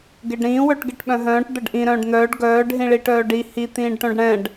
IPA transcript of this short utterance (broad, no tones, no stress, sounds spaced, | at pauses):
ɡ e ɖ ɾ ĩː w œ ʈ ɡ e ʈ ɓ œ̃ ɦ œ̃ː ʈ d̪ ə ɖ ʔ ĩ ɾ œ̃ː ɖ n̪ œː ɖ ɡ œː ɖ ɦ ĩ ɭ i ʈ œː ɖ i h i t̪ ĩː ɖ ʈ œ̃ ɖ ɽ ɛ̃ ɖ